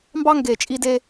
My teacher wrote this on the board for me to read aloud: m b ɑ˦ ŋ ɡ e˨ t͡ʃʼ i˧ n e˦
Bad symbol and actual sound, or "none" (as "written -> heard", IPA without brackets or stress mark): n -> d